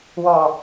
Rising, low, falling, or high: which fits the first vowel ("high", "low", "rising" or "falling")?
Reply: low